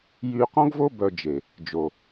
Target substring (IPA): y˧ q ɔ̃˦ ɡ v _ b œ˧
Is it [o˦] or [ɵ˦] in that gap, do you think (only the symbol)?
o˦